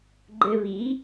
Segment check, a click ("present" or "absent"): present